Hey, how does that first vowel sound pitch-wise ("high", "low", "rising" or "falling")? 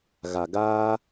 low